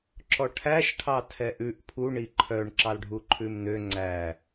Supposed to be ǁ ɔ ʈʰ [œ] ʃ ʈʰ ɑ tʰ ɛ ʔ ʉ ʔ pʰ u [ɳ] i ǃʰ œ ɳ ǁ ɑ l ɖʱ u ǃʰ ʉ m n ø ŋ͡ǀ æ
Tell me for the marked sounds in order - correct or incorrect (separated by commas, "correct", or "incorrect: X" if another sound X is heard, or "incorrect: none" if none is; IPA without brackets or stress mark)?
incorrect: æ, correct